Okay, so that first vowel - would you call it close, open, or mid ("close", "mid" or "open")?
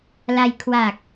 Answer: open